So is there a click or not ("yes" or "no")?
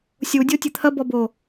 no